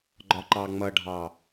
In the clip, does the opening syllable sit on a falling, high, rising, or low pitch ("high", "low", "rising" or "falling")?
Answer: low